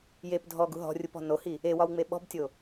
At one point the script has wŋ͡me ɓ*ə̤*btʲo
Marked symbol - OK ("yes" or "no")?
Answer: no